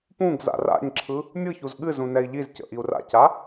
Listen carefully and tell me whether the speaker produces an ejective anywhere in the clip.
no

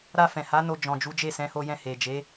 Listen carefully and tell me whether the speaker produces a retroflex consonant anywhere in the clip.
no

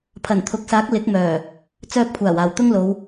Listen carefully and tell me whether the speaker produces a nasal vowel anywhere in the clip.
no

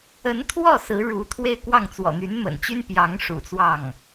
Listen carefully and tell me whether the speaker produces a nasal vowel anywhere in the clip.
no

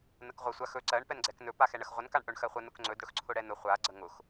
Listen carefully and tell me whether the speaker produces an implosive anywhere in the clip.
no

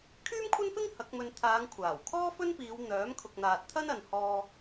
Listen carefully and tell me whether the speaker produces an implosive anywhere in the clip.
no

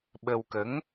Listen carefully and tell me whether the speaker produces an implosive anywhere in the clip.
yes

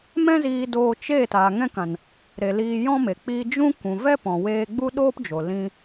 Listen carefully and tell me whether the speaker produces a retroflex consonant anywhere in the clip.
no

